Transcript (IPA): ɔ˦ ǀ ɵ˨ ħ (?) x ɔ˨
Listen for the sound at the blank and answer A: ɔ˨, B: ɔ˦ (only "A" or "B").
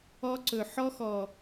B